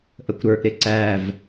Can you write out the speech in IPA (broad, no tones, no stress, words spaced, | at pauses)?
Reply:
ʔəkʷɾə˞ʔɾɪ ǀæv